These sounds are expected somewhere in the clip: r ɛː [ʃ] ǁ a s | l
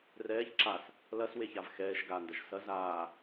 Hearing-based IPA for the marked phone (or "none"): ç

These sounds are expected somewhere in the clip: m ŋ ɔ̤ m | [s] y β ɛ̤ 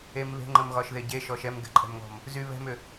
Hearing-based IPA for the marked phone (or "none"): z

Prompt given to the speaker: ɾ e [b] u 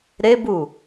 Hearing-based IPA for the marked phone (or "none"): b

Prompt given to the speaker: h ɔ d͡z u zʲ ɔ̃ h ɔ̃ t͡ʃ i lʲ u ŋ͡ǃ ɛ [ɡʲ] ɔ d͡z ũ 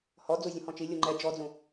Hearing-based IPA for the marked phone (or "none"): d͡ʒ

